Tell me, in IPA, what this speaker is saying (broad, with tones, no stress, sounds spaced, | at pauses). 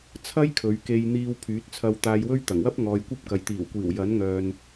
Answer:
t͡sʰ ɐ˥ j kʰ ɵ˨˧ ɥ k e˧ j n̪ iː˧ w pʰ yː˨˥ t̚ t͡sʰ ɐ˧ w t̪ aː˧ j w ɵ˥ ɥ t̪ ɐ˨˩ ŋ w ɐ˥ p̚ ŋ ɔː˨ j kʷ ɐ˥ p̚ k ɐ˨ j t̪ iː˨˩ w kʷ iː˨˩ w j ɐ˨˥ n ŋ œː˨ n